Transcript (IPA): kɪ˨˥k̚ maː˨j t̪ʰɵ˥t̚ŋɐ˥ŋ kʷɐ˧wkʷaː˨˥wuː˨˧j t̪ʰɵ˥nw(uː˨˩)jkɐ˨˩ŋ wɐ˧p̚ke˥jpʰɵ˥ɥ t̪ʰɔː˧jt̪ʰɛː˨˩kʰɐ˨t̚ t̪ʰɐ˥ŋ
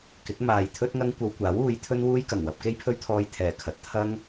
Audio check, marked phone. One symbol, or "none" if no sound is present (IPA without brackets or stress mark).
uː˥